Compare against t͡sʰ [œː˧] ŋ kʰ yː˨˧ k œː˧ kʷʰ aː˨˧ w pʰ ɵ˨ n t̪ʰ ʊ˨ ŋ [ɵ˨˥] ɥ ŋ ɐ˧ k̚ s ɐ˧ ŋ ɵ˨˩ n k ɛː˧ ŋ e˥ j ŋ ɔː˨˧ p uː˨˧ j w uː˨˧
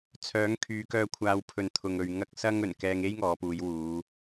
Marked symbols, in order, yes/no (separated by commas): no, no